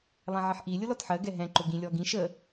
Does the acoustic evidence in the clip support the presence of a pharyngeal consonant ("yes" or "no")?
yes